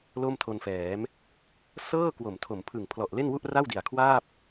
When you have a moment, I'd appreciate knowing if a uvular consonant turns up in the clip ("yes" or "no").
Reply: no